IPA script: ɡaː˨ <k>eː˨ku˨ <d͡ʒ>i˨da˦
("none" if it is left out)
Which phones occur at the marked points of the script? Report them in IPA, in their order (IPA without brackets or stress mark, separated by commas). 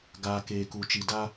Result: k, t͡ʃ